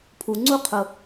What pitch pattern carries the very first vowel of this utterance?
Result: low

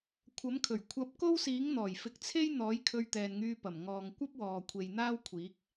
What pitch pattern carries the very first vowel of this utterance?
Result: rising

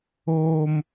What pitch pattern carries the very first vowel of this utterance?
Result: high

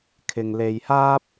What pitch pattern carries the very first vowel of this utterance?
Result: low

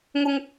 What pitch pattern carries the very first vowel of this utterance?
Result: high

